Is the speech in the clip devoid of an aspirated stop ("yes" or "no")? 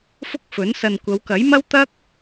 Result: yes